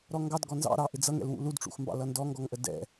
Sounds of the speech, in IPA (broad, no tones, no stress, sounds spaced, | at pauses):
ɾ ɔ ŋ ɡ ɑ d ɡ ɔ n z ɑ̰ ɾ ɑ ʔ ɪ d͡z ʌ ŋ ɛ̰ l w ṵ l u d ʈ͡ʂ ṵ x m b ɑ̰ l ʌ n d ɔ ŋ ɡ ɔ ŋ ʔ ə d ɛ̰